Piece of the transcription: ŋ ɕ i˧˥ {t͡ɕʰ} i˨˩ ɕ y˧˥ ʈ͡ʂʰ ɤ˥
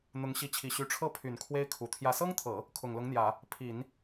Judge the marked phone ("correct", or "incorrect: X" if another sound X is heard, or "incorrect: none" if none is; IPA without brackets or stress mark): correct